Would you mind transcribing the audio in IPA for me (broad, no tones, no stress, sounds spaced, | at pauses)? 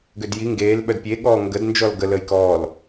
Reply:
ɡ ø d j i ŋ ɡ eː l ɓ œ d pʲ e ɠ ɔː ŋ ɡ ə d n d͡ʒ ɔ l ɡ ə l əː j k ɔː l